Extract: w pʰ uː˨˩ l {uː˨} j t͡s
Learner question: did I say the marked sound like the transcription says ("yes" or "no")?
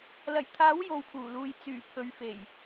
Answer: yes